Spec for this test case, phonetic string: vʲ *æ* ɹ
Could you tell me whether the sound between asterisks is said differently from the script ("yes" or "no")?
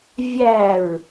no